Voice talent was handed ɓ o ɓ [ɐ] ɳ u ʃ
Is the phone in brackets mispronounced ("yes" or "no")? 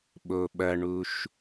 no